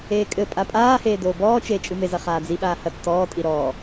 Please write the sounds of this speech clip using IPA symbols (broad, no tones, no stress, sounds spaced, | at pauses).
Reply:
eː kʼ ɘ pʼ a pʼ aː h eː d oː b ɔː t͡ʃ eː t͡ʃʼ ɨ m e z ɐ χ aː d͡z i ɓ aː h ɐ t͡s t ɔː tʼ i ɾ ɔː